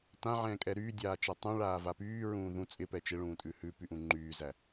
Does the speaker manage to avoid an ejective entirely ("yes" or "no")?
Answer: no